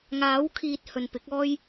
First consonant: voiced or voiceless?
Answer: voiced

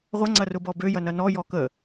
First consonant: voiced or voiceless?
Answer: voiced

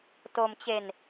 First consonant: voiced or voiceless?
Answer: voiceless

